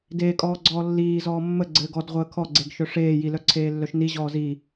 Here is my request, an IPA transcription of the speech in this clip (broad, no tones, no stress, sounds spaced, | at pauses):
d eː kʼ ɔː ɡ͡ǀ ɔː lː iː z ɔː mː ə ɡ͡ǀ ɘː ɡ ɔ d ʁʷ əː kʰ ɔ ɡ͡ǀ e ɡ ʃ œ ʂ eː j i l œ ǀʰ eː lː œ ʃ n i ʑ ɔː z i